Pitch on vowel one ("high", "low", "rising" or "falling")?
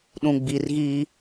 low